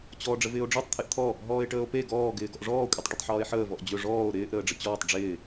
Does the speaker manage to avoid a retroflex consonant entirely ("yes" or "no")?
no